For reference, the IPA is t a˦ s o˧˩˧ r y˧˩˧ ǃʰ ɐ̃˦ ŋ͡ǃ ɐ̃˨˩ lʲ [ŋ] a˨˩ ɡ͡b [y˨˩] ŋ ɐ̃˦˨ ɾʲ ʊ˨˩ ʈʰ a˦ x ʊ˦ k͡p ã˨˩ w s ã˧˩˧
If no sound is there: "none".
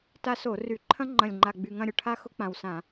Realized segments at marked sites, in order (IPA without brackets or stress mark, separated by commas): ŋ͡ǃ, y˨˩